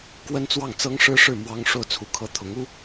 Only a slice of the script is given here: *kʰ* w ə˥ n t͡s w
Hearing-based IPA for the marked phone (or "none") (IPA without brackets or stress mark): k